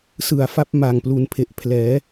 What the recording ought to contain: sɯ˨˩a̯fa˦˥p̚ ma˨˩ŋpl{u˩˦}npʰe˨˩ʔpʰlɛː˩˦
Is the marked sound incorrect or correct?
correct